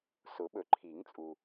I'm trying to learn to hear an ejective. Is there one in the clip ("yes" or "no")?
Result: yes